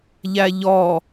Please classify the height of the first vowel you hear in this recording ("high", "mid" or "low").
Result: low